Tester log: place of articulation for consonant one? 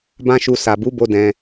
labial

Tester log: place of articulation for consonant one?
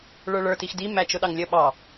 retroflex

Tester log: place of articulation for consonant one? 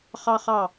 uvular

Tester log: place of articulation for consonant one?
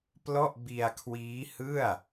labial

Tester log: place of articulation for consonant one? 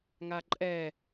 velar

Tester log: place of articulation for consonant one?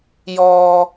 palatal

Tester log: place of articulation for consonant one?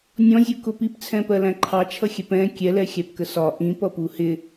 alveolar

